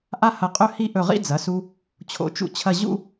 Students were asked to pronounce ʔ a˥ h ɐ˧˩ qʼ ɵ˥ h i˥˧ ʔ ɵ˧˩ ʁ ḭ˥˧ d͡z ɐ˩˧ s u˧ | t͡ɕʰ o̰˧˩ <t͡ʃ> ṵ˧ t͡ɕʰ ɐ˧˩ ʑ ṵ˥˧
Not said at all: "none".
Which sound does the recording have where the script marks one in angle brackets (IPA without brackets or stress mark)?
t͡ʃ